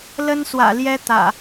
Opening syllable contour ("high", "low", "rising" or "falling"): high